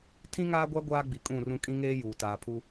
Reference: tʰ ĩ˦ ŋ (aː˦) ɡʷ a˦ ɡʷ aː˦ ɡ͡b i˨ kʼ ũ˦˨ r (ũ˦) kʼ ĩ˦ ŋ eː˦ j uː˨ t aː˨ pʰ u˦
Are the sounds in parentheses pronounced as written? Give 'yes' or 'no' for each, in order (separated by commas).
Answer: yes, yes